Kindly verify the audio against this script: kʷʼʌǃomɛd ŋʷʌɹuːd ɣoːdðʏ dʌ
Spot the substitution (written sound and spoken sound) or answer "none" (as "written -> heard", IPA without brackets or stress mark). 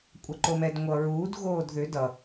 none